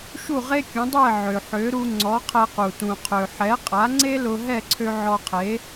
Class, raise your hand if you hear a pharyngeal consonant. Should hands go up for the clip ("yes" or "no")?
yes